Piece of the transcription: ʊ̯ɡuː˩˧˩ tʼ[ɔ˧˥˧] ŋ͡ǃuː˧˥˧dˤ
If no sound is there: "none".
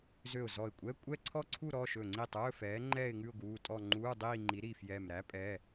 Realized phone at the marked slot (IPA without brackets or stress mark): ɔ˥˧